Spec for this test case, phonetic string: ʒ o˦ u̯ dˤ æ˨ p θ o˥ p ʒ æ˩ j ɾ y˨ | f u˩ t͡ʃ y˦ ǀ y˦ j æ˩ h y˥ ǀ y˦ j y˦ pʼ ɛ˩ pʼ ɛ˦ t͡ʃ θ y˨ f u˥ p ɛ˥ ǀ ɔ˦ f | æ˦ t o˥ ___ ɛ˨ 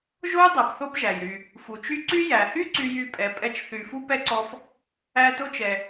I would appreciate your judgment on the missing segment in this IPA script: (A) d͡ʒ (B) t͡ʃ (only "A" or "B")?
B